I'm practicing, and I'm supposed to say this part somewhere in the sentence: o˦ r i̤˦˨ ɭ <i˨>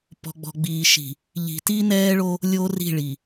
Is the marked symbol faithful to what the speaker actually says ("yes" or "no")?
yes